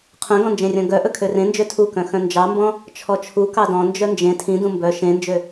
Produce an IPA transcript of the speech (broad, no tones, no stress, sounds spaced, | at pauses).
qʰ œ̃ ɡ ɔ̃ n d͡ʒ ẽ rʲ ɔ̃ ɡ œ ʔ ɵ kʰ ø r ẽ n d͡ʒ ø tʰ u k œ̃ x œ̃ n d͡ʒ ɑ m b ɔ̃ | t͡ʃʰ ɔ t͡ʃʰ u k ɑ d ɔ̃ n d͡ʒ œ n d͡ʒ ẽ tʰ ĩ d ũ m b œ ʃ ẽ n d͡ʒ ø